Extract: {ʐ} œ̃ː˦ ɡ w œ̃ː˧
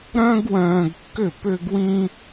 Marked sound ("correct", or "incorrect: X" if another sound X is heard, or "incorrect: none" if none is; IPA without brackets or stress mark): incorrect: ɾ